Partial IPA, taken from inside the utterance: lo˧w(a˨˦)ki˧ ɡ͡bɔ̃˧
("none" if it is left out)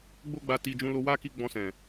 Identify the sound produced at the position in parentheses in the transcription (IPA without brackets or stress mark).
a˦